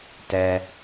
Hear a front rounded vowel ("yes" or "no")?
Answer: no